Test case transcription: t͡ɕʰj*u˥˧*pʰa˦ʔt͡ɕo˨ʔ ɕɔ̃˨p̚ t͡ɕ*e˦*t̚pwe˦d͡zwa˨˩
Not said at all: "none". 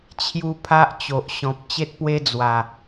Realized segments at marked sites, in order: u˦, e˦

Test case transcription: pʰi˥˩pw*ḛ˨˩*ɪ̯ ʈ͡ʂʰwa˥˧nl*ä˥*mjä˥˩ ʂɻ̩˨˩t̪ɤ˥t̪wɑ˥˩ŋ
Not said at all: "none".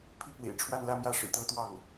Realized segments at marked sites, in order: ḛ˨˩, ä˥˧

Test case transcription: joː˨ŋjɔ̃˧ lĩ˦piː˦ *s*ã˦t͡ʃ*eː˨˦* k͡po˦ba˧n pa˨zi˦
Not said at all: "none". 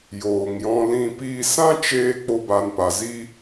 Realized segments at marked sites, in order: s, eː˧

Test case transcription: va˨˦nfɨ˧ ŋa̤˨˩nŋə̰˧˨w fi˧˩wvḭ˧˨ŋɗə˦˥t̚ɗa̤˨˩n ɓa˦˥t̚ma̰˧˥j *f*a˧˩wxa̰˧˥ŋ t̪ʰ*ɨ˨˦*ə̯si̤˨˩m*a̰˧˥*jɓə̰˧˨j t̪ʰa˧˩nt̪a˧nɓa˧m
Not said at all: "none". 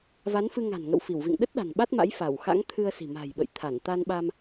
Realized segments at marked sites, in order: f, ɨ˧, a̤˨˩

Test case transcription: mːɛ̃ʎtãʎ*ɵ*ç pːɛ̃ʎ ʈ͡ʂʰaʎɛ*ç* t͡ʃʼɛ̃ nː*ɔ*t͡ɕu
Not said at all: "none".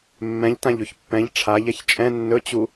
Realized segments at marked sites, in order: ɵ, ç, ɵ

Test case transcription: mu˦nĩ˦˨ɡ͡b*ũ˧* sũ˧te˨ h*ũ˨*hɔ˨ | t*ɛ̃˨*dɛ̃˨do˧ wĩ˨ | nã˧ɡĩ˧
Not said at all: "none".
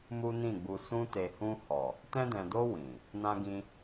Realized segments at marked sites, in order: u˧, ũ˧, ɛ̃˧

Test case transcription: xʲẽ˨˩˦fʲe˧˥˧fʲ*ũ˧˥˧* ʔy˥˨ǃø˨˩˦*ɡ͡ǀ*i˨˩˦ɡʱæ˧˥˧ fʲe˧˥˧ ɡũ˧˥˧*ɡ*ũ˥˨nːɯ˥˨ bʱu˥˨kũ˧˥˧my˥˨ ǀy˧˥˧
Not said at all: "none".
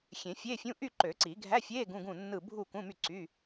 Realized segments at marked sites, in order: ũ˧˥˧, ǀ, ɡ

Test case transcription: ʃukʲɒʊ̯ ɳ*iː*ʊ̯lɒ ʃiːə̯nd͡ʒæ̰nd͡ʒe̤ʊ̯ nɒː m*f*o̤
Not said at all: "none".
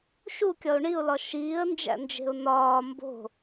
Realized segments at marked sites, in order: i, b

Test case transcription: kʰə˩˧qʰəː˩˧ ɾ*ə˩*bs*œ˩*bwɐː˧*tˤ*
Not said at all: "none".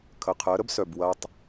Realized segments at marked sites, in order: ə˥, œ˩, tˤ

